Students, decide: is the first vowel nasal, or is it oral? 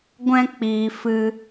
nasal